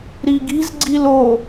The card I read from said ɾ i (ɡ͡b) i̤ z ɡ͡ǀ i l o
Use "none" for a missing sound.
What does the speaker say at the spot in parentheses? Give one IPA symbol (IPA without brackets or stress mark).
ɡ